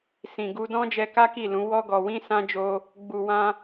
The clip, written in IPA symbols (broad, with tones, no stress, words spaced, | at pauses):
sĩ˨ ɡu˧dɔ̃˦ d͡ʒɛ˧ka˦ki˦˨lũ˨˦ wɔ˦ɡɔ˧wĩ˦ sã˦d͡ʒo˦ | ɡ͡bu˨ wã˧